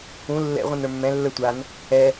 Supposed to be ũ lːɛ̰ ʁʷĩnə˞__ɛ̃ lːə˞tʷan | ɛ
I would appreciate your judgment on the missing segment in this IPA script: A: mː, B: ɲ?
A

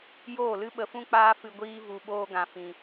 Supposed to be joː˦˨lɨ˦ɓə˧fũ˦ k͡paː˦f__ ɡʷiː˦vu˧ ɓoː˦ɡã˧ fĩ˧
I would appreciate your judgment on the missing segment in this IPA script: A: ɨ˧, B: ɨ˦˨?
A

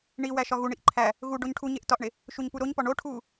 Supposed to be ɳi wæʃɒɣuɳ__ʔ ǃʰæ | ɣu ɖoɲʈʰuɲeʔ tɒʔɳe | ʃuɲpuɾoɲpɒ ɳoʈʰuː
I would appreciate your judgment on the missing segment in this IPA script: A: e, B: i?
B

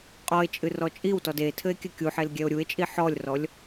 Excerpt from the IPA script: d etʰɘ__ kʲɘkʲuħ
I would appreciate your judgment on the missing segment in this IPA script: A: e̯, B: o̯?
A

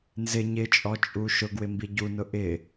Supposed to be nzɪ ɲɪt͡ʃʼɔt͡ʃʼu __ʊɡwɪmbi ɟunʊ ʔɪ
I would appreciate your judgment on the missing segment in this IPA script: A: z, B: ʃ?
B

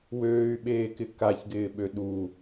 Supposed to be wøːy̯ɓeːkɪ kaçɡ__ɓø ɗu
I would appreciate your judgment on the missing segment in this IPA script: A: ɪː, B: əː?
A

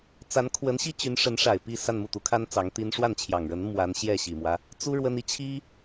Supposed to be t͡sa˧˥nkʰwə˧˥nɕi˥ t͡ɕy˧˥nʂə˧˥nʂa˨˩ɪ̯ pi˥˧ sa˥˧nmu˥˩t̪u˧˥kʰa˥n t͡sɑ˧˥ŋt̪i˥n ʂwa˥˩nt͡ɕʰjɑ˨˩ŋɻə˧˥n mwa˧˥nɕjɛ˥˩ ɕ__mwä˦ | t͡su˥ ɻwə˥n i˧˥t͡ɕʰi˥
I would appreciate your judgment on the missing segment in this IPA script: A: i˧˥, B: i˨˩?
B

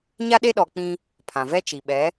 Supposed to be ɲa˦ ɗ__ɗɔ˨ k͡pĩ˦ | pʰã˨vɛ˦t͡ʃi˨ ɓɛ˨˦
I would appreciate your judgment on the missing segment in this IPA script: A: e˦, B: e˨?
A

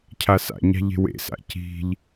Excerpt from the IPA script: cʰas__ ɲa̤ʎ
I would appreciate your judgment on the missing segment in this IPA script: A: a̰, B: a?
A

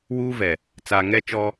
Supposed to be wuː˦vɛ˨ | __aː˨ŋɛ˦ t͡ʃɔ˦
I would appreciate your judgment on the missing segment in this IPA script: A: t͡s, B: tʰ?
A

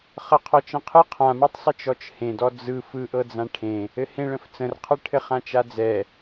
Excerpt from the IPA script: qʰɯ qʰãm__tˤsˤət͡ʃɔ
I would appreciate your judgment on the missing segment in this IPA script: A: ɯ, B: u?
A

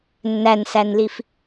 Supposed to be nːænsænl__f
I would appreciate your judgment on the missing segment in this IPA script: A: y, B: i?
B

